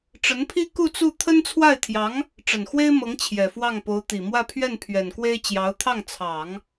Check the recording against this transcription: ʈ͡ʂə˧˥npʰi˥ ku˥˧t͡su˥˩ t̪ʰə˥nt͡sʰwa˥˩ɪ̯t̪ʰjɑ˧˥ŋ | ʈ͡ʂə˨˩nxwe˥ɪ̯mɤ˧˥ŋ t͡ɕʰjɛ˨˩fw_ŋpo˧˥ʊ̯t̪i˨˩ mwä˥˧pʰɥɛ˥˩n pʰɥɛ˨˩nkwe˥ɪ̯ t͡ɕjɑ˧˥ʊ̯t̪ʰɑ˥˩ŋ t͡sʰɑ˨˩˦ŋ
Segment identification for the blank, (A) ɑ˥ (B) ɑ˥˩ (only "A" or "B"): B